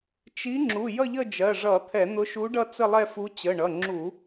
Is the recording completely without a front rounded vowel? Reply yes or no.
yes